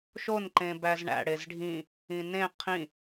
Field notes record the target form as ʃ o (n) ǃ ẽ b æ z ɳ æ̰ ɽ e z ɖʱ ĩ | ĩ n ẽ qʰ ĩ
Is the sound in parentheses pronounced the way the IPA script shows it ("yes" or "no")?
yes